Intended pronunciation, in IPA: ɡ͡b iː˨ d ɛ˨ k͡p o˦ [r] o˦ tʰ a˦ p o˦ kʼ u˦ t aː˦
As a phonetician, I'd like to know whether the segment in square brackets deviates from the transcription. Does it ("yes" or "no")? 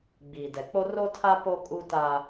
no